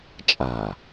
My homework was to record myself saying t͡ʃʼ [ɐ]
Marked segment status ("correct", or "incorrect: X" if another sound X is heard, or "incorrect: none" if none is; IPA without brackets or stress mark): incorrect: a